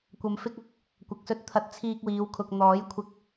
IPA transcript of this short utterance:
kʷɐ˨mfɪ˧k̚ ɐ˨˥k̚ | kʷɐ˨˥k̚sɵ˧t̚ t̪ʰɐ˨˥t̚ t͡sʰiː˧k̚wiː˨˧wkʰʊ˨k̚ n̪ɔː˨˥jkʷʰɪ˧k̚

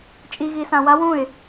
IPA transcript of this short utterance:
t͡ʃʼiɣisã wa wũɪ̯

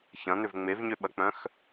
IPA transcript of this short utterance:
çɐ̃n̪ʏv ŋ͡mevɲøɓɐk͡pœ̃x

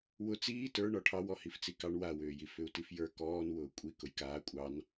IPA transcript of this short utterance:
wʊ t͡siː tə˞ɳɔ ʈʰɑw ɔhift͡sikɑɳ wawʏːjif ʏu̯tifjə˞ kɔːnwʊː kʷʼi kʊjkaː kʷʼɑn

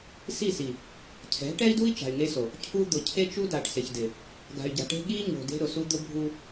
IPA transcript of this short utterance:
si˦˨si˨ | cʰɛ̤˨˦ʈɛ˦i̯du˦i̯ t͡ʃa̤˨y̯ŋe˦so˨ | cʰu˦ d̪ʊ˨cʰe˦t͡ʃu˦da˨ʈ sɪ˨çdɪ˨ | ɡa̤˨y̯ɟa̤˨ʈe̤˦ ɠi˦ ɲo̤˨de̤˦ ɾʊ˨su˦ d̪ʊ˦ bʱu˦

